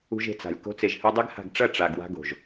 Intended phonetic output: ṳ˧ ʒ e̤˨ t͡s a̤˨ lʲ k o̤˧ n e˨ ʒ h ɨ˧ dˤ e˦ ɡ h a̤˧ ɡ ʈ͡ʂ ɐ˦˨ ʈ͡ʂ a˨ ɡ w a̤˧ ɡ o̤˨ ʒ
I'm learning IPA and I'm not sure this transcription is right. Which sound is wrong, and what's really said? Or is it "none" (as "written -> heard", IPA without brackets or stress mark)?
n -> t͡s